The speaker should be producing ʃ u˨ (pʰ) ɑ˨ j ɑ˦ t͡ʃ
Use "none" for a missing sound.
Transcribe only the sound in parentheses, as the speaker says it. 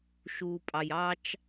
pʼ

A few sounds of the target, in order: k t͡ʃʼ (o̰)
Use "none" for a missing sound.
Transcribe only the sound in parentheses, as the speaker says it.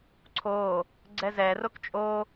o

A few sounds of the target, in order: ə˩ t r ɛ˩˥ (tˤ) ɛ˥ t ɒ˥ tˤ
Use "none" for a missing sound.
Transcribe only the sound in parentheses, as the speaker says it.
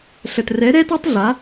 ɾ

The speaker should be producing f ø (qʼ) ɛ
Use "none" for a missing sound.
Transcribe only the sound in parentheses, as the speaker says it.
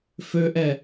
ʔ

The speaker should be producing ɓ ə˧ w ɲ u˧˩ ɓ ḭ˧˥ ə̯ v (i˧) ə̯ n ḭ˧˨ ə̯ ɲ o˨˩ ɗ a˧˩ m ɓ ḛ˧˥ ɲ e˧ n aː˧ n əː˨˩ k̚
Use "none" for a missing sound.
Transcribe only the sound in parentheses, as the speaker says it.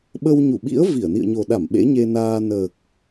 i˧˩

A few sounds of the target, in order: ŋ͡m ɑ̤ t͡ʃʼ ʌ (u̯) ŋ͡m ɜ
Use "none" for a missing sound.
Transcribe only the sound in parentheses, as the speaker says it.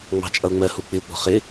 u̯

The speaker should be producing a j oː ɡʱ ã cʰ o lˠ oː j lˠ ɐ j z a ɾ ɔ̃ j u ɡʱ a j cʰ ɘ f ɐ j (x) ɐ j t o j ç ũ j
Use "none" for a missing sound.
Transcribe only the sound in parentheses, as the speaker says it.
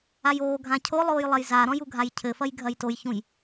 ɡʱ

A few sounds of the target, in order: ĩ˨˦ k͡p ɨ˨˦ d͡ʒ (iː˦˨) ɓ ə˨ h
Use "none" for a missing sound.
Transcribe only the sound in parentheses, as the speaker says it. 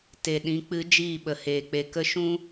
iː˦˨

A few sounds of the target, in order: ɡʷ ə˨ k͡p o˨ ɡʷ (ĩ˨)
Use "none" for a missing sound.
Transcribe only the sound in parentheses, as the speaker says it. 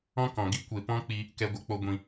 ĩ˨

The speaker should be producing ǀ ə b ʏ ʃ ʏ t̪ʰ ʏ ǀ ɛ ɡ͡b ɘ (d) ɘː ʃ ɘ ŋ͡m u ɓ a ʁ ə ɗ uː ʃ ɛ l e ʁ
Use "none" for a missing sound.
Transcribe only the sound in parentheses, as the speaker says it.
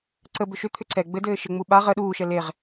d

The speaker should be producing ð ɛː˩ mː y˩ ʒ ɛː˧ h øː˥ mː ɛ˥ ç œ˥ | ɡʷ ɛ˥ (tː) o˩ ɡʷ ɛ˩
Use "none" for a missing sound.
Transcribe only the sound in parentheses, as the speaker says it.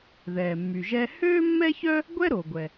ɾ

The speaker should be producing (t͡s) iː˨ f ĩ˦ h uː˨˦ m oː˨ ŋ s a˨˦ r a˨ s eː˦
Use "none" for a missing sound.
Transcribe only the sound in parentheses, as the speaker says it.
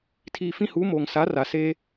tʰ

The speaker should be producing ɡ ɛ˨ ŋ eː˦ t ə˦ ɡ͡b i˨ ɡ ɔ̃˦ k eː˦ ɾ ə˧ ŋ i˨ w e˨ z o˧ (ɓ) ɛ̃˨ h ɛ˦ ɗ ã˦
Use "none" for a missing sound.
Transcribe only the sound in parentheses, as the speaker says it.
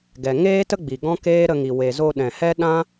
ɗ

